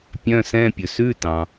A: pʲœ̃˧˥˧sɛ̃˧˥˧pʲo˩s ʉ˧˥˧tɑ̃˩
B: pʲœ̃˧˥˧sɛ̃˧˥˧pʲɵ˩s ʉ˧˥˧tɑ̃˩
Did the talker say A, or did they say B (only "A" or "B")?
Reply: B